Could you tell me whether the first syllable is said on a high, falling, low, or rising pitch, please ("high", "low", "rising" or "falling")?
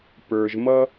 low